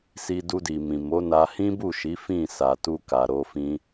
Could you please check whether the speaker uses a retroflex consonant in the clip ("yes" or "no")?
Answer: no